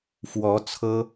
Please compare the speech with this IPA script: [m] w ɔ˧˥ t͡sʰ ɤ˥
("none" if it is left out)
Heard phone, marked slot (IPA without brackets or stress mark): f